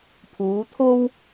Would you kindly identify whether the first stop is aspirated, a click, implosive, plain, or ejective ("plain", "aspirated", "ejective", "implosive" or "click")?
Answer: aspirated